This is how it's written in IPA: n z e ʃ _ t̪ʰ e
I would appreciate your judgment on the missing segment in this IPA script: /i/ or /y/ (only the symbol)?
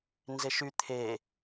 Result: y